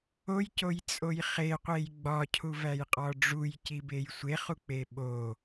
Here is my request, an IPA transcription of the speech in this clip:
o j c o j t͡sʼ o j χ e qʷ e j ɡ͡b ɒ cʰ u v æ j qʼ ɒ ɖ͡ʐ u j c i b e j sʷ e χ u k͡p e ɓ o

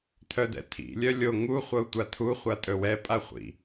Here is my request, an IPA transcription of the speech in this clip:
tʰ œ d ɛ̰ tʰ ḭ lʲ œ lʲ o ŋ u χʷ ɤ u̯ tʷ a tʰ u χʷ a tʼ ɵ w ɛ pʼ a χʷ ḭ

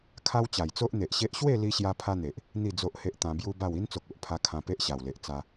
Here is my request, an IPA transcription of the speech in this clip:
kʰ a˦ w t͡ɕ a˨˩ j t͡s o˦ ʔ n̪ e˨ ʔ ɕ e˦ ʔ ɕ w e˥˧ l i˧ ɕ j a˧ pʰ a˦ n̪ e˨ ʔ | n̪ i˥˧ d͡z o˦ ʔ h e˦ ʔ t̪ ã˧ b j u˦ b a˥˧ w i˦ n t͡s o˨ k̚ o˨ ʔ pʰ a˧ kʰ ã˧ p e˦ ʔ ɕ a˨˩ w l e˨ ʔ t͡s a˧

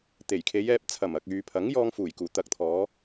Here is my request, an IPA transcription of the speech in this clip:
t̪ e˨˩ j kʰ e˨˧ j ɛː˧ p̚ t͡sʰ ɐ˨˩ m ɐ˨ k̚ yː˨ pʰ ɐ˨˥ ŋ j ɔː˧ ŋ f uː˨˩ j k uː˨˩ t̪ ɐ˨˥ k̚ t̪ʰ ɔː˨˧

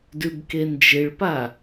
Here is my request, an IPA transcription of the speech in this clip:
d ʉ b k e n d͡ʒ ɪ ɭ p a

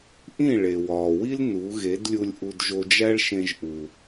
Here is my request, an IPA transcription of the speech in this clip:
ʔ ĩ˥˩ ɭ e˩ w ɒː˩ w i˥ l n u˩˥ ɣ e˩˥ d lʲ u˧ lʲ ʔ u˧ d ʒ o˧ d͡ʒ æ˥ ɭ ʃ ẽ˧ ʒ ʔ u˩

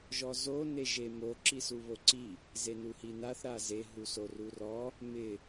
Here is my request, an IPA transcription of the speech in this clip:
ʒ ɔ z o n e ʒ e m o ǁ i s u β o ǀ i | z e n u h i n a θ ɾ a z e ɦ u s o r u r ɔ | m ɪ

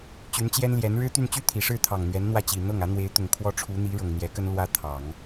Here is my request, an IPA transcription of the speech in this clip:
t͡ɕ y˧˥ n t͡ɕ j ɛ˥ n l j ɛ˧˥ n ɻ ɻ̩˥ t̪ y˥˧ n t͡ɕ y˥˩ t̪ʰ i˨˩ ʂ ɻ̩˥˩ t̪ʰ ɑ˨˩ ŋ n̪ ɥ ɛ˧˥ n n̪ w ä˥˩ t͡ɕ i˨˩ n̪ ɤ˥˩ ŋ ä˧˥ n̪ w e˧˥ ɪ̯ t̪ ʊ˨˩ ŋ kʰ w ɔ˥ ʈ͡ʂʰ u˧˥ n̪ i˧˥ ɻ ɤ˨˩ ŋ n̪ j ɛ˧˥ k ə˥ n l w ä˥ t̪ʰ ɑ˨˩˦ ŋ

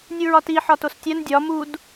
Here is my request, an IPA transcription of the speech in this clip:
nʲ u ɹ ɒ t i ħ ɒ t o s tʲ æ n dʲ ɒ m u d

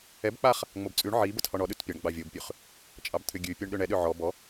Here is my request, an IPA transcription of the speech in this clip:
ɛ b k͡p a χ | ŋ͡m o b t͡sʼ ʉ ɳ ʕ i b ə t h ɔ ɳ ɔ ɗ ʉ t pʲ a ɳ ɡ͡b ɑ vʲ o b pʲ ʉ χ | t͡ʃʼ ɑ b t̪ʰ ʏ ɡʲ ʉ pʲ o ɳ ɗ ʏ ɳ ɛ ɗ ʏ ʕ ɔ b ɔ

